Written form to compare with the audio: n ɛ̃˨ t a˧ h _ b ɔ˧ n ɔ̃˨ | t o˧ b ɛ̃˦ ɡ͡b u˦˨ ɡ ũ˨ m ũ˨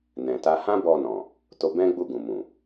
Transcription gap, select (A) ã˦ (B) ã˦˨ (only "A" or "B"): A